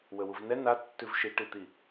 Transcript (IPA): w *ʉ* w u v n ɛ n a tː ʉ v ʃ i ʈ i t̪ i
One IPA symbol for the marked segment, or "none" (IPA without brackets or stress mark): ə